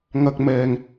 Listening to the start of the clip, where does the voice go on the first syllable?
low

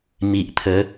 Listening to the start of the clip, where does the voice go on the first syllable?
low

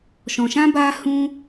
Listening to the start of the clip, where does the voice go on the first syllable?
low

